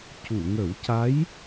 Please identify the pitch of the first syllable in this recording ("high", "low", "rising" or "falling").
low